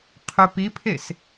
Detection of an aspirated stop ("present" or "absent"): present